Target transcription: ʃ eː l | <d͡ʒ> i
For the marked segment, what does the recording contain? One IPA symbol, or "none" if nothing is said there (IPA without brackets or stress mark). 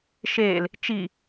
t͡ʃ